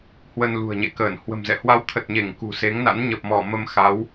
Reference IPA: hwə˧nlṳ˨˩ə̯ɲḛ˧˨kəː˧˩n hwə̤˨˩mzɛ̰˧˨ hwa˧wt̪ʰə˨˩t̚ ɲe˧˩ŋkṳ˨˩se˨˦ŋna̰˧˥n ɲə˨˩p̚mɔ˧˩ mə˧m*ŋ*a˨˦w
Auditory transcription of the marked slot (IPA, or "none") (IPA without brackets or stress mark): x